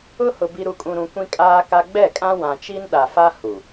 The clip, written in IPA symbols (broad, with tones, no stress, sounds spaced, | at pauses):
ʊ˦ h ʊ˨ b i˨ ɾ u˨ kʼ ũ˨ ɾ ũ˨ kʷ ĩ˦ kʼ aː˦ k a˦ ɡ͡b ɛ˦˨ kʼ ã˦ w ã˨ t͡ʃ i˦ n ɗ a˨ f a˦ h u˨